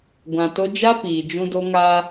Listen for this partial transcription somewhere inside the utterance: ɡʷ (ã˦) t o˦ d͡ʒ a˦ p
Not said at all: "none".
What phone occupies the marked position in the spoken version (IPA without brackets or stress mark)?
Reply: ã˨